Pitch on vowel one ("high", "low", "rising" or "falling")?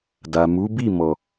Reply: low